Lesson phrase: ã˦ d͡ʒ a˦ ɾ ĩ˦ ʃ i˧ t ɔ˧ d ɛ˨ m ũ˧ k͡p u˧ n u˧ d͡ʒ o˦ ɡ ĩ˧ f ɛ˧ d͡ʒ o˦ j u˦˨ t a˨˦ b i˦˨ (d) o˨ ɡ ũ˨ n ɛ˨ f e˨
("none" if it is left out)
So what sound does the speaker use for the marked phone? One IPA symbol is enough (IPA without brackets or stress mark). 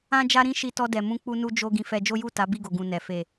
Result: ɡ